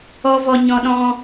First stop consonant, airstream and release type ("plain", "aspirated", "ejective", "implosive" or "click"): implosive